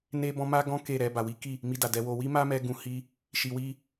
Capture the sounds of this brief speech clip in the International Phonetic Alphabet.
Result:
n e˦ b ɔ̃˦ m a˦ ɡ ɔ̃˦ k e˦˨ ɾ ɛ˧ b a˨ w i˨˦ k i˦˨ | m i˧ d a˨ d ɛ˧ w o˧ w i˦ m a˦ m ɛ˧ ɡ ũ˧ h i˦ | ʃ i˧ w i˦

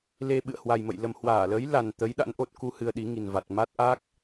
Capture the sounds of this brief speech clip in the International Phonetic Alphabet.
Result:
l e˧ ɓ ɨ̰˧˨ ə̯ h w a˨˩ j m ə̰˧˨ j l ə˨˩ m h w aː˧˩ l əː˨˦ j l a˨˩ n t̪ ə˨˦ j ɗ a̰˧˥ n ʔ o˨˩ t̚ k u˧ h ɨ˧ ə̯ ɗ i˨˦ ŋ i˨˩ n v a˨˩ t̚ m a˦˥ t̚ ʔ aː˦˥ k̚

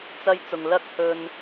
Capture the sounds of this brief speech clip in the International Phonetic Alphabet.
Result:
t͡s ɐ˥ j t͡s ʊ˧ ŋ l ɐ˥ k̚ h ɵ˧ n

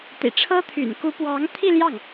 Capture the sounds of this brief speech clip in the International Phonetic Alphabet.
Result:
t̪ ḭ˨˩ ʈ͡ʂʰ ɤ˥ t̪ʰ y̰˨˩ n k u˧˥ p w ɑ˧˥ ŋ t̪ʰ i˥˧ l j ɑ˥˩ ŋ

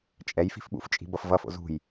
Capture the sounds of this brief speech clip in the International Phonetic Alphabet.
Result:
t͡ʃʼ ɛ j f i̤ f ɓ ṵ f t͡ʃʼ i̤ b ʌ f v ʌ f o̰ z ṳ j

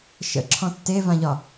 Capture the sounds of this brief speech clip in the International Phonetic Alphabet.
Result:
ʃ ə̰ ǁʰ ɔ̃ tː e v ã ʎ ɒ

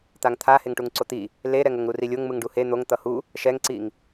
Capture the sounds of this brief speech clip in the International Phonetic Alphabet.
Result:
t̪ a ŋ t̪ʰ a h e ŋ ʈ u ŋ ǀ o t̪ i | l e ɾ ɛ ŋ o ŋ ɾ u r i lʲ o ŋ m ɯ ŋ ɖ u h e n̪ o ŋ t̪ ʌ h u | ʃ ɛ ŋ ǀ i ŋ

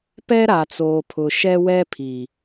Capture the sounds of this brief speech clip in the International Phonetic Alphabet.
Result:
p ɛ˦ ɾ a˨ t͡s oː˨ pʰ ʊ˨ ʃ ɛ˦ w ɛ˦ pʰ iː˨

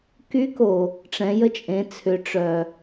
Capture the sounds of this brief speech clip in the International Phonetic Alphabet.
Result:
k y˧˥ k o˩ | ʈ͡ʂ ɛ̃˩˧ j ə˧ t͡ʃʼ ẽ˩˧ t͡sʰ ʏ˩˧ ʈ͡ʂ œ˩

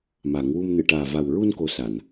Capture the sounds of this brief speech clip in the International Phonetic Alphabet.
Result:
m a˨˩˦ ŋ w u˧ m n ɨ˨˩˨ ʈ aː˨˩ v a˨˩ w ɹ u˧ n k o˧˥ s a˨˩˨ n

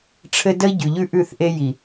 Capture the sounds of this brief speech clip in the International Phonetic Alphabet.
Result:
ʈ͡ʂʰ ɘ˦ d ə˦ i̯ ɟ ʉ˨ ʎ ʉ˦ ʔ ʉ˦˨ θ ʔ e˦ j i˨

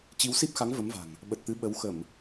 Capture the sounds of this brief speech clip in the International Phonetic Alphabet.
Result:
t͡ɕ i˨˦ w s i˦˥ p̚ x a˨˦ ŋ v ə˨˦ m v a̤˨˩ ŋ | ɓ ə˨˩ t̚ t̪ ɨ˨˦ ɓ ə˨˦ w x ə˧˩˨ m

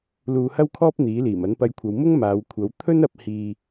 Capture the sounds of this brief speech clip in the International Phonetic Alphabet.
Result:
l uː˧ h ɐ˥ w kʰ ɔː˥ p̚ n̪ iː˨˥ l iː˨˩ m ɐ˨˥ n p ɐ˧ j kʷʰ ɐ˨˧ w m ʊ˥ ŋ m aː˨˧ w kʷʰ ɐ˨˥ w t̪ʰ ɵ˥ n ɐ˧ p̚ h iː˨

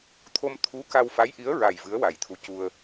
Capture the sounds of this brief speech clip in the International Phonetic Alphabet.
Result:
t̪ʰ o˧ m t̪ʰ u˧˥ k a˧ w f a˧˥ j ʔ i˧˥ ə̯ ɹ a˨˩ j v ɨ˧˥ ə̯ w a˨˩ j t̪ʰ u˧˥ c u˧ ə̯

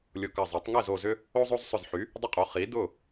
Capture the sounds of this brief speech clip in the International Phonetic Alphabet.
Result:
lʲ ʊ˧˩ k ɐ˧˩ zˤ ɛ˩˥ tˤ ŋ ɛ˥˩ z o˧˩ z ʏ˦ | o˦ zˤ o˦ z sˤ ʏ˧˩ z ħ y˩˥ | dˤ ʏ˦ qʼ o˩˥ χ i˩˥ d ʊ˥˩

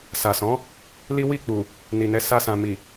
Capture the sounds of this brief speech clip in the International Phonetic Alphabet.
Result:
s a˨ s ɔ̃˨˦ | l i˦ w i˦˨ k͡p u˨ | n i˨ n ɛ˨˦ s a˧ s ã˨ m i˨

